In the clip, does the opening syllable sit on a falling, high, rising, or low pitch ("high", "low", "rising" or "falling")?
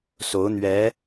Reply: rising